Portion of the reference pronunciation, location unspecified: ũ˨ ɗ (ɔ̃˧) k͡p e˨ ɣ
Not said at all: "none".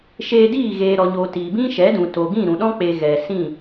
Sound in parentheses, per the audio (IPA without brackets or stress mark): ɔ̃˦